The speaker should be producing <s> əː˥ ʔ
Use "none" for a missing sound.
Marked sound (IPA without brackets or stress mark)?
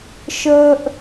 ʃ